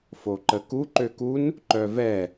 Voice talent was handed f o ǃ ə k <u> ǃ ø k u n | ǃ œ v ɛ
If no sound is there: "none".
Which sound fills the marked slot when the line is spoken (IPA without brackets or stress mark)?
u